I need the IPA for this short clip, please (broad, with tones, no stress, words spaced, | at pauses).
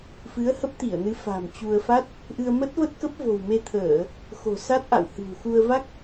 fɨ˨˦ə̯hə˦˥p̚t̪i˧˩ə̯nɨ˨˦ fa̤˨˩mt͡ɕu˧ə̯ fa˦˥t̚ | ʔɨ˧ə̯ mə˦˥t̚və˦˥t̚kə˦˥p̚ vo̤˨˩wme˧t̪ʰəː˧˩˨ | xo̤˨˩sa˦˥t̚ʔa̰˧˨w hɨ̤˨˩w xu˧ə̯ va˦˥k̚